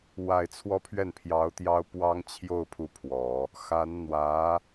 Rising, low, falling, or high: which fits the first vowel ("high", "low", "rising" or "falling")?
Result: low